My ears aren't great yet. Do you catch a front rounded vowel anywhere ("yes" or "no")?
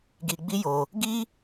no